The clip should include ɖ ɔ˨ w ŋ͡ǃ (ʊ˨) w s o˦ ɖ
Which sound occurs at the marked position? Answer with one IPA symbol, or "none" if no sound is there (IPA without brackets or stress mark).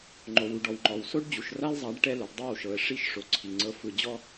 ɔ˨